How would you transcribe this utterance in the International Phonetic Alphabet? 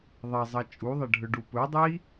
ðˤ ɐ zˤ ɐ t͡ʃʼ u ðˤ ɐ ɖʱ ɵ ɖ u p ɵ dˤ i

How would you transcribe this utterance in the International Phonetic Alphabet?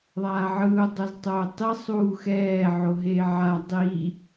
ðˤ aː ʕ ɯː u̯ dˤ o z tˤ oː tˤ i sˤ uː x ɛː ʕ o ɦ eː ʕ a dˤ i

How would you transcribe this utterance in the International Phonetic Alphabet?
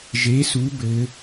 ʒ e˨˥ s u˨˥ b ɘ˨˥

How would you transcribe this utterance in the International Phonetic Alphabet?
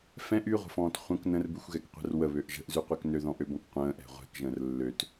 f ɛ̃ ʔ y ʁʷ ə̤ f ɔ̃ː t χʷ ə̃ k n ə̃ r b ʉ xʷ ɣ ɛ k qʷ ɛ̤ r w ə β ø ʔ ʒ ə̤ ʔ z ʉ qʷ ɛ k n ø ð ɔ̃ ʔ ø b ɔ̃ k qʷ ə̃ː ʔ ɛ̤ ʁʷ ɛ̤ k ʒ ə̃ː r lː ø t

